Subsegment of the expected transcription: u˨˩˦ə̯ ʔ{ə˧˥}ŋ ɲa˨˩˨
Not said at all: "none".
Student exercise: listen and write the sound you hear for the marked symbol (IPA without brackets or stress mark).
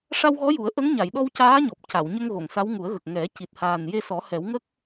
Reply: ə˧˥